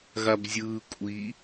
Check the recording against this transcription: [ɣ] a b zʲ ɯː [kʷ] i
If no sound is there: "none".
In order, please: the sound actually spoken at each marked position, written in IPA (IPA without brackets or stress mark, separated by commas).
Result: ɣ, kʷʼ